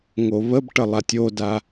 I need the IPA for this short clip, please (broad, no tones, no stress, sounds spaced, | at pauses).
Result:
ŋ o β ə b ʈ ə lˠ a tʲ o d a